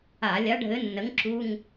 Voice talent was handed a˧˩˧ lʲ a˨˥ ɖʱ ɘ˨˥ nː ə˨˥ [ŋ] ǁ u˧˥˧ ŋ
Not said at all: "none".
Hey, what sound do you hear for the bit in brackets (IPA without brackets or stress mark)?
ŋ